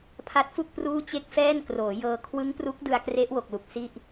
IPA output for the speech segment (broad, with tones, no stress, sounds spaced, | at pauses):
pʰ a˦˥ t̚ f u˥˩ k̚ p r uː˥˩ t͡ɕ e˥˩ k̚ f ɛː˥˩ n k r oː˩˦ j ɤː˧ kʰ w ɯ˦˥ ŋ p r u˦˥ k̚ d ɯ˧ a̯ k r e˦˥ ʔ w o˨˩ k̚ l u˨˩ k̚ s i˥˩ ʔ